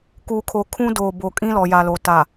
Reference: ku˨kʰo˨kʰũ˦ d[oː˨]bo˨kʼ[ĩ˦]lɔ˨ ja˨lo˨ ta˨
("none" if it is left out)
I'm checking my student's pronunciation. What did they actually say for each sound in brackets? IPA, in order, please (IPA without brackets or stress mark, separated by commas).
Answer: oː˨, ĩ˦